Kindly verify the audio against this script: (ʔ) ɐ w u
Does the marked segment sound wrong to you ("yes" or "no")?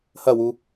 yes